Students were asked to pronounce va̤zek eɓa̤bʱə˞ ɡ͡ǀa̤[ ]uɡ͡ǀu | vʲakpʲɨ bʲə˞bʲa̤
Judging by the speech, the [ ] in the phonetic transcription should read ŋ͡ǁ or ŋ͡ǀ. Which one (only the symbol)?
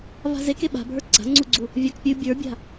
ŋ͡ǀ